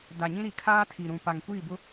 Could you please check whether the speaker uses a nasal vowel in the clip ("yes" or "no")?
yes